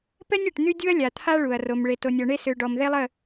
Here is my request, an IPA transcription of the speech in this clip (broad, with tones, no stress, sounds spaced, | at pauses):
p ɛ˦ nʲ ɛ˨ ʈ n̪ y˦ dʲ u˦ ɐ̯ lʲ a˨ t̪ʰ a˦ ɭ u˨ ɐ̯ r o˨ m ɭ e˨ t o˨ nʲ ɔ˨ ɳ e˦ s ø˨ ɖ ɔ˨ m ð e˦ lˠ ə˦˨